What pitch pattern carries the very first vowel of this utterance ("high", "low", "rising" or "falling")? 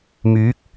rising